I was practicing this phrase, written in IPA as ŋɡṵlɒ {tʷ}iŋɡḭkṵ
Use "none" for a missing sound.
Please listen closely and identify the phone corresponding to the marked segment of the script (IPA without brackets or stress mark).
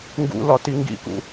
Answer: t